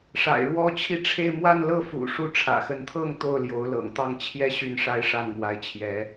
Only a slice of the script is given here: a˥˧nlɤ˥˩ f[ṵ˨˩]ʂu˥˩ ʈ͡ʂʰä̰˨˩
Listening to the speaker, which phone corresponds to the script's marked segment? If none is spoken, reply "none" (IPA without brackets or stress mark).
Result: ṵ˨˩